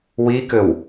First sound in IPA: w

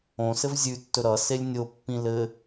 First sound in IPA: õ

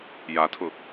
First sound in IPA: j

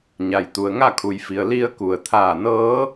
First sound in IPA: ɲ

